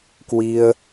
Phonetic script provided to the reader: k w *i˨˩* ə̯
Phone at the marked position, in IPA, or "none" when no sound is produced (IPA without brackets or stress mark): i˧